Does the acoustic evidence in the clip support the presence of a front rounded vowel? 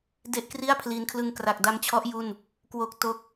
no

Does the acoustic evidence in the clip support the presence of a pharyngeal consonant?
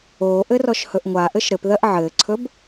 yes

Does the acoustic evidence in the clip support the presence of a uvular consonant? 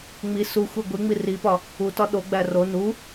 no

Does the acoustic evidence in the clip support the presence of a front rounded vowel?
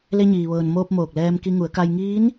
no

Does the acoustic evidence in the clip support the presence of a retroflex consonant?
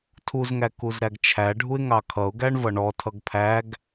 yes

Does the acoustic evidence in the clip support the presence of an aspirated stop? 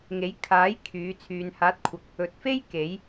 yes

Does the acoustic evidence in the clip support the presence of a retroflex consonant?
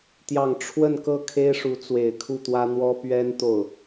yes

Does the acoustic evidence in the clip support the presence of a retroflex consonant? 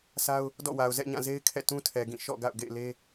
no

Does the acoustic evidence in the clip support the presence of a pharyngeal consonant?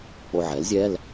yes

